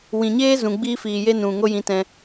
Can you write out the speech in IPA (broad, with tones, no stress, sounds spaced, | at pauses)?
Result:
w ĩ˨ ɲ eː˦ z ũ˨ ɡ͡b iː˦ f iː˨ j e˦ n ũ˨ ŋ o˦ j ĩ˧ t ɛ̃˧